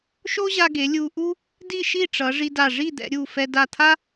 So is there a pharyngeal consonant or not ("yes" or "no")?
no